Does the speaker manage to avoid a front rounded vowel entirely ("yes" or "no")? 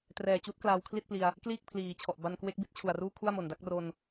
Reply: yes